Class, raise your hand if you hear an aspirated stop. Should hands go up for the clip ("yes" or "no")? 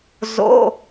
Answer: no